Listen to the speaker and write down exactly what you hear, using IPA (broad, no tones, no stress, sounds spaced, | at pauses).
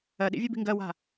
ɜ ɗ ḭ vʲ e b i̤ ŋ ɡ ɜ w a̤